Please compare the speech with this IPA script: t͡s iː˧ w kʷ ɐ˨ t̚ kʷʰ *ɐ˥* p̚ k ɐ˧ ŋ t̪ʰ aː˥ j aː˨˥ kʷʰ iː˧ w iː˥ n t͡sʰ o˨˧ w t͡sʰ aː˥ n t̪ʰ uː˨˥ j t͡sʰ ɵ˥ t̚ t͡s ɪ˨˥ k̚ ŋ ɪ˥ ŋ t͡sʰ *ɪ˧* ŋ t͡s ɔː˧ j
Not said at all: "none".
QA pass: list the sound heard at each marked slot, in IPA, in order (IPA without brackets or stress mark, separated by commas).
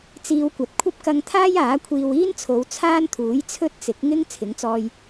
ɐ˥, ɪ˨˥